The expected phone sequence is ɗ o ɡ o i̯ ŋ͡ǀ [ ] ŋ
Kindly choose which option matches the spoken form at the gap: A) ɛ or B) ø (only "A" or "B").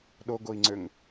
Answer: B